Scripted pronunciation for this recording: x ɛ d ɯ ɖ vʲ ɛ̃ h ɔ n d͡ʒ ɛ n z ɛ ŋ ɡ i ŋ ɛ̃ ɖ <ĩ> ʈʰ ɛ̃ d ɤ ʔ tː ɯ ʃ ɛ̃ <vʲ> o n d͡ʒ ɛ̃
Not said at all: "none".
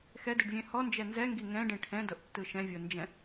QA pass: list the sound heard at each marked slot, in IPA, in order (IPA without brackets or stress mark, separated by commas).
ĩ, vʲ